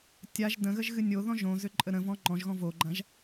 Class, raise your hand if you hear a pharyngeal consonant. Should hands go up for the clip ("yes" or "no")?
no